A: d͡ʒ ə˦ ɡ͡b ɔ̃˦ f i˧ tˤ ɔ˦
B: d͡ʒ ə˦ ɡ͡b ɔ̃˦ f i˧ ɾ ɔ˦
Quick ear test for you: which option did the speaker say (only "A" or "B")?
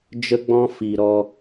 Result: B